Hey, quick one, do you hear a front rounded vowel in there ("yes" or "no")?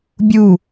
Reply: no